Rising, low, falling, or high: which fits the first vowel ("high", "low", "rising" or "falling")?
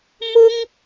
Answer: high